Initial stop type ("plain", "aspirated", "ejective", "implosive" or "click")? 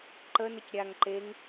click